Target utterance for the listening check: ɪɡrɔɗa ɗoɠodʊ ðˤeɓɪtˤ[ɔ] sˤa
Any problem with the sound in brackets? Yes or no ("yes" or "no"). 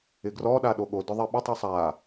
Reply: yes